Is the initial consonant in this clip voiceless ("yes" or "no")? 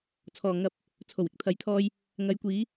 yes